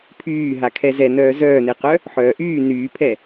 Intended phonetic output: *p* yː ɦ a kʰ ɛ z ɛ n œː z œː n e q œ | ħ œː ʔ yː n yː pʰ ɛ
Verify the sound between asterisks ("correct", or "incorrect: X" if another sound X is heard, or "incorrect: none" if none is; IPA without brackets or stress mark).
incorrect: pʰ